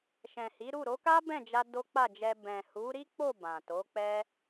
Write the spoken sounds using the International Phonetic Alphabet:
ʃ ɛ̃˨ h i˨˦ ɾ u˦˨ ɾ o˨˦ k a˦ b ɛ̃˦˨ d͡ʒ a˧ d o˦ k͡p a˦˨ d͡ʒ ɛ˧ b ɛ̃˨ h u˨˦ ɾ i˦ k͡p o˦˨ b ã˨ t o˨˦ k͡p ɛ˦

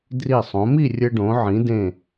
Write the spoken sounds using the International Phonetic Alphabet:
d r i˧˩ sˤ õ˩˧ m i˥˧ rʲ ɘ˧ ɖ õ˩˧ ʕ ĩ˩˧ d ẽ˧˩

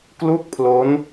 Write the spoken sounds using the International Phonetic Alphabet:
k l u˥˩ k̚ pʰ l o˦˥ n

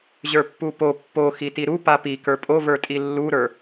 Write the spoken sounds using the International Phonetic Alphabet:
ʑ ə˞ pː u p o pː o x i t i ɾ u p a p i k ə˞ pʼ o v ə˞ tʼ i lː u ɾ ə˞

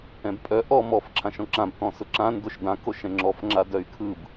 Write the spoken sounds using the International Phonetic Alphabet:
ɛ̃ b pʼ œ ʔ ɔ m ɔ f ǁʰ ã ʃ ɔ̃ ǁ ã b t ɔ̃ s ʊ ǁ ã n d o ʃ d ã k o ʃ ɛ̃ ŋ͡ǁ ɔ f ŋ͡ǁ a d œ y̯ kʰ ɯ b

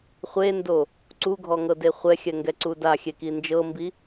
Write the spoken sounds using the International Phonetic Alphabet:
χʷ e n d o | ǀ u ɡʱ ɔ ŋ ɤ d e χʷ ɛ xʲ ɛ ŋ ɡ ɛ ǀ u d a xʲ e k i n d͡ʒ ɤ m b i

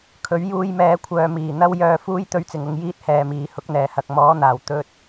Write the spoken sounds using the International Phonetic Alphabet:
kʰ ɵ˨˥ ɥ j uː˧ j m ɛː˨˥ kʷʰ œː˨ m iː˨˩ n̪ ɐ˧ w j œː˨ f uː˧ j t̪ ɵ˨˧ ɥ t͡s ɪ˨˩ ŋ ʊ˨ ŋ j iː˧ t̚ h ɛː˨˩ m iː˨˩ h ʊ˨˥ k̚ n̪ ɛː˨˩ h ɐ˨ k̚ m ɔː˨˥ n̪ aː˨˩ w t̪ ɵ˧ t̚

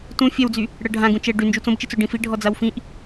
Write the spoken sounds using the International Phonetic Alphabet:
t ũ fʲ ɛ w d͡z y | ɽ ɜ ɖʱ ã ɡ ũ t͡ʃ ɛ ɖ y n d͡ʒ u t͡s õ b t͡ʃ i t͡s o ɖ ĩ f i ɖʱ ɔ d͡z a w f ĩ ʔ

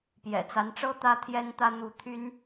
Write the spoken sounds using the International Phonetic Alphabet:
p j ɛ̰˨˩ t͡s a˨˦ n ʈ͡ʂ ɤ˦ t̪ ä˦ t̪ʰ j ɛ˦ n t̪ ä˦ n̪ u˨˦ t̪ʰ y˦ n

